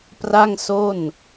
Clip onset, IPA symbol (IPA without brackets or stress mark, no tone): p